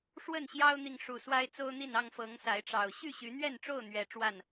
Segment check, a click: absent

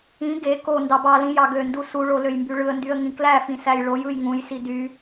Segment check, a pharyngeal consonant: absent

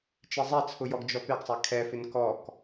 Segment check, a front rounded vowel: absent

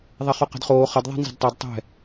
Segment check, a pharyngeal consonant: absent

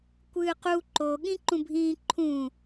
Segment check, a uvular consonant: present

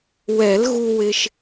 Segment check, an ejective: absent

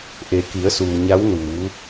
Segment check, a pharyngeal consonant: absent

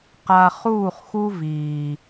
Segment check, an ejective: absent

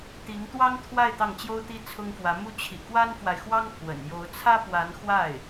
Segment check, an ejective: absent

